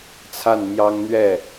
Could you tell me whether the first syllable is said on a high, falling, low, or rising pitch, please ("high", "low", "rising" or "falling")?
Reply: falling